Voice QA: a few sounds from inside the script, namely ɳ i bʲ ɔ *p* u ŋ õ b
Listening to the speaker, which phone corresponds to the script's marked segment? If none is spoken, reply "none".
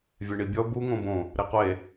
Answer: b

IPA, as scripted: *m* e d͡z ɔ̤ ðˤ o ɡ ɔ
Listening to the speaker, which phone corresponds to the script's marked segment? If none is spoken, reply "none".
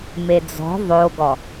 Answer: m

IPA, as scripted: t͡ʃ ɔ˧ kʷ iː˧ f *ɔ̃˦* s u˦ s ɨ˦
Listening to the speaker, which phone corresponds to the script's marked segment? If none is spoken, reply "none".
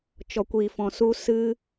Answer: ɔ̃˧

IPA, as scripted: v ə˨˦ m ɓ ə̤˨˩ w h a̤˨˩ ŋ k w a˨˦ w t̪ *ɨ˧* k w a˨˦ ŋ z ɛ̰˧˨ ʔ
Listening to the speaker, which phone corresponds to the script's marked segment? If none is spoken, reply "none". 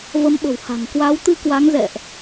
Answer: ɨ˧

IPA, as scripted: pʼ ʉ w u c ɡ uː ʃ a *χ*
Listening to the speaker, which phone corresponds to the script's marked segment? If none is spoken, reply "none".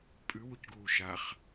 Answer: χ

